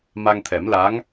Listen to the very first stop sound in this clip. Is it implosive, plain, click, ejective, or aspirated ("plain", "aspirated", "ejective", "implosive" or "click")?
aspirated